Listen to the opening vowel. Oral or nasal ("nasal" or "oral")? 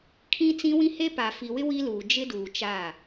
nasal